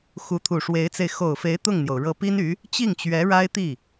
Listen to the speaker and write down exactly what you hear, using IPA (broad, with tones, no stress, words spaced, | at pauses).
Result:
xu˧˥t̪ʰu˨˩ʂwe˧˥ɪ̯t͡se˧ɪ̯ xo˨˩ʊ̯fe˧˥ɪ̯ t̪ʊ˥˩ŋn̪jo˩ʊ̯ ɻɤ˧˥ pi˥ny˧˥ | t͡ɕi˥˩ŋt͡ɕɥɛ˧˥ɻa˥ɪ̯t̪i˥˩